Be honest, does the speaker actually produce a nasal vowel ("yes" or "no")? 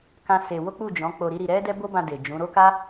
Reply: yes